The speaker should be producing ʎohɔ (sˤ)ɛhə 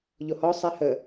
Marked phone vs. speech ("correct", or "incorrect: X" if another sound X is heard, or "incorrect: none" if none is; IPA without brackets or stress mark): correct